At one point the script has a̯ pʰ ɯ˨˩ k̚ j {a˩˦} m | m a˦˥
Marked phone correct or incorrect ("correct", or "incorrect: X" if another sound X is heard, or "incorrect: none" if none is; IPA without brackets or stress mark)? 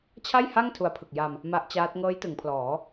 incorrect: a˧